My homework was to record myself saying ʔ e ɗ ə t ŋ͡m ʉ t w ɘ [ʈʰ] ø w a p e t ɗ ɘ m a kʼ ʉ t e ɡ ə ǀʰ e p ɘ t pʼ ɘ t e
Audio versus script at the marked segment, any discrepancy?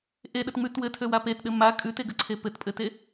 yes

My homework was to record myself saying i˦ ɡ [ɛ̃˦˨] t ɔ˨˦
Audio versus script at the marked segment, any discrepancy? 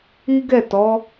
yes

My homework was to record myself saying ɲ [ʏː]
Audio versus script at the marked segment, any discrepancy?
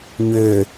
no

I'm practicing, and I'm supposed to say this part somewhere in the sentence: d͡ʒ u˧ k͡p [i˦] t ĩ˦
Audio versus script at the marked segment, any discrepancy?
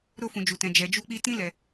yes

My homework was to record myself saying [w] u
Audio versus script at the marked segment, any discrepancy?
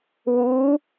no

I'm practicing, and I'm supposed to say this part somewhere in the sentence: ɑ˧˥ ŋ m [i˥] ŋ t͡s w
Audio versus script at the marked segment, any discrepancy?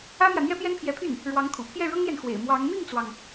yes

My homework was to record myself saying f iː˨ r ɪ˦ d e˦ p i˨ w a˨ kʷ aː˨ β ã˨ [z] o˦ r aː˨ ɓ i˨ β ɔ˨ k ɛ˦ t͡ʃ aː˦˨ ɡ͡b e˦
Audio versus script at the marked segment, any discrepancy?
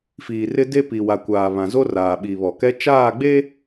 no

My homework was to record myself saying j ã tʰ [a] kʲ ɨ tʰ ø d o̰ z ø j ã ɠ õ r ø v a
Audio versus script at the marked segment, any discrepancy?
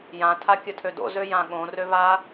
no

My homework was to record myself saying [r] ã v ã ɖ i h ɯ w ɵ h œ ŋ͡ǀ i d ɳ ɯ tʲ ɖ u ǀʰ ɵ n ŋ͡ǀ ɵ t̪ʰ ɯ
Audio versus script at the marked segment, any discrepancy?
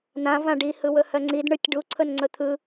yes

